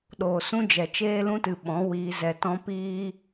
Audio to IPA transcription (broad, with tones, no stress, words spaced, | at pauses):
ɗoː˨sũ˦d͡ʒɛ˨ t͡ʃeː˧lũ˧tɨ˨ ɓɔ̃˨˦wiː˧zɛ˧tɔ̃˦ piː˦